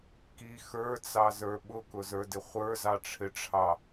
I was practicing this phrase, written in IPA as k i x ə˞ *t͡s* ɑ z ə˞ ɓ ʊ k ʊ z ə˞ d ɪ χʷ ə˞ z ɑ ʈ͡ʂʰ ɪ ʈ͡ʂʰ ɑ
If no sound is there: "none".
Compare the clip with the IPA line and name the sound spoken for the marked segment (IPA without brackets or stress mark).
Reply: t͡s